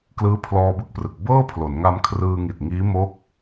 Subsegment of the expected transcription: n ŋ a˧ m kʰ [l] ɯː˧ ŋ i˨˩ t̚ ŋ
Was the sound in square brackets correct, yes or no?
no